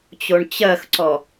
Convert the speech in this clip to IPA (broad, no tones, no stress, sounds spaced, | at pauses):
t͡ɕ o ɳ t͡ɕ ɜ x ǀ ɔ